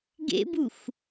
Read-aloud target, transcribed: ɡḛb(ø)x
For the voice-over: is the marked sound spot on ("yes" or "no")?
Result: no